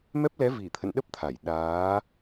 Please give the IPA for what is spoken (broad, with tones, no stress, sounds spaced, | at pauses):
m ɛ˦˥ p̚ l ɛ˨˦ v i˧˩ t̪ʰ ə̰˧˨ n ɗ ə˦˥ p̚ t̪ʰ a˧˩ j ɗ aː˨˦